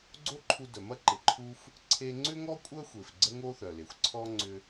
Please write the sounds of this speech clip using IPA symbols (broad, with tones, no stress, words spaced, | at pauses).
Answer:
ɡ͡ǀo˥ǃʰu˧dœ˩mɐ˥ ǃɪ˩ǃʰu˧f | ǀʰe˧ŋ͡ǀʏ˥ŋɔ˥ kʷʼœ˥xʷe˩f ɡ͡ǀə˥ŋo˥θœ˩le˩xʷ ǀʰɔ˥ ŋ͡ǀʏ˧